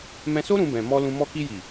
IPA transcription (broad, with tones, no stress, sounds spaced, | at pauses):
m ɛ̃˧ s o˦ ɾ ũ˦ b ɛ̃˧ m ɔ˦ l ũ˧ m ɔ˧ k i˧ j i˨